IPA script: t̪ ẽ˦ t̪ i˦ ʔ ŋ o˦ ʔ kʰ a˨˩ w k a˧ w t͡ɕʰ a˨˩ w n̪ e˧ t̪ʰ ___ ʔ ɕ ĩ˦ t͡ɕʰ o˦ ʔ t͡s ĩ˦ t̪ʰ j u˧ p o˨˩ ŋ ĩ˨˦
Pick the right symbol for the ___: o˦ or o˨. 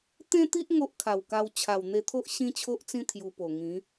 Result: o˦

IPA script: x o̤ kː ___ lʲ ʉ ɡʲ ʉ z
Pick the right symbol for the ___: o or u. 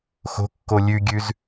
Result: o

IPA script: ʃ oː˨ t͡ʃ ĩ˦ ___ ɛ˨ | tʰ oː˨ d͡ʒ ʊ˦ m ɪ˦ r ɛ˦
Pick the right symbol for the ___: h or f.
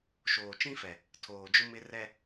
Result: f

